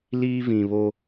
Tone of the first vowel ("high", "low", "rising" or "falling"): high